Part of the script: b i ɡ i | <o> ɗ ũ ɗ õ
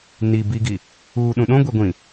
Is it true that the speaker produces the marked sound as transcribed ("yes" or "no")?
no